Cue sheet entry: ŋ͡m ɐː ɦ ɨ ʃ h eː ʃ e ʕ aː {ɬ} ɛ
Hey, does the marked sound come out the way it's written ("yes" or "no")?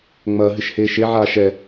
no